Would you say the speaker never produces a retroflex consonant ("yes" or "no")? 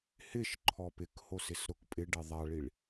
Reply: no